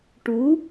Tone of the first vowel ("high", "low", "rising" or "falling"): rising